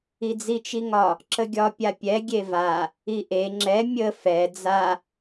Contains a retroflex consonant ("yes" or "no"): no